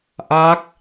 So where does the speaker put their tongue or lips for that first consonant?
throat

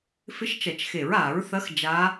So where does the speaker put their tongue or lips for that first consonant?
lips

